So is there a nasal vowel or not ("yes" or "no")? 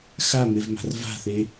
no